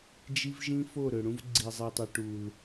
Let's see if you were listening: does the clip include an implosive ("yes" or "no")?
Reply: no